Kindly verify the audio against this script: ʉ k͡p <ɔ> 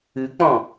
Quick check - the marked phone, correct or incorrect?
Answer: incorrect